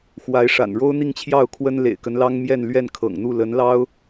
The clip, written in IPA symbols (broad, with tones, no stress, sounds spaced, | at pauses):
x w a˧˥ ɪ̯ ʂ a̰˨˩ n ɻ o˥ ʊ̯ n̪ i˥˧ ŋ t͡ɕʰ j ɑ˥˩ ʊ̯ kʰ w ə˥ n l ḛ˨˩ ɪ̯ k ə˧˥ n l ɑ˥ ŋ m j ɛ˥˧ n l ɥ ɛ˥˩ n kʰ ɤ̰˨˩ ŋ n̪ u˥˩ l ə˧˥ n l ɑ˥ ʊ̯